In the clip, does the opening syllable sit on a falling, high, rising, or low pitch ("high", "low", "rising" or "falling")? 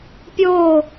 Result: falling